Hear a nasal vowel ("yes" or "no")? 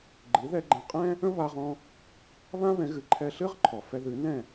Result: yes